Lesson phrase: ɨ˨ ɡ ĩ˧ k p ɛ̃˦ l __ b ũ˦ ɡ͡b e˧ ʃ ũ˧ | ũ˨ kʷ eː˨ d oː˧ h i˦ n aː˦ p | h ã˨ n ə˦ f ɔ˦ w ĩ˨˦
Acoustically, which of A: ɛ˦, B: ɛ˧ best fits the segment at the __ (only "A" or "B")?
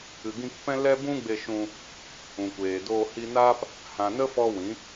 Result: A